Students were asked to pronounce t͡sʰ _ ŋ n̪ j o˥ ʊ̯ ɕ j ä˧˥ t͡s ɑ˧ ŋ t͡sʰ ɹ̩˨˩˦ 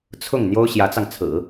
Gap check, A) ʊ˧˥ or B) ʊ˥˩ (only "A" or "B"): B